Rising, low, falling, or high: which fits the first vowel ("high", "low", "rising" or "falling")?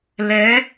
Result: rising